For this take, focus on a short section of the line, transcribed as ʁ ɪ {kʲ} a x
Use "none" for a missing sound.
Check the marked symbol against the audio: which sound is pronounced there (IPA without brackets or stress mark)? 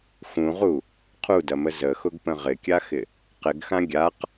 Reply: kʲ